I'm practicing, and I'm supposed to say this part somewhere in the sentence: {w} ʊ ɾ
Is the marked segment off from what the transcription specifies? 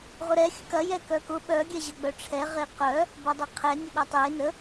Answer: yes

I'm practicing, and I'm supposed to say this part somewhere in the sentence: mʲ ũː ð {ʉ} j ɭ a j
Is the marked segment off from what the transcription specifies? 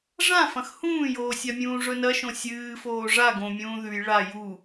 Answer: no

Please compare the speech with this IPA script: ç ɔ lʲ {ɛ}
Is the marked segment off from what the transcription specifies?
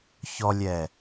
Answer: no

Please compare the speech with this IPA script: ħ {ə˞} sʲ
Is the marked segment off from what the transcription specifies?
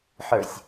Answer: no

